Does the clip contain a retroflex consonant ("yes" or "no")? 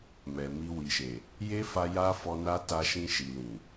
no